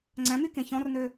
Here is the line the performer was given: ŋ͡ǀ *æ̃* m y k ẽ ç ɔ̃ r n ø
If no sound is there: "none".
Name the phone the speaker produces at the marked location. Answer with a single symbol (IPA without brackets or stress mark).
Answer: æ̃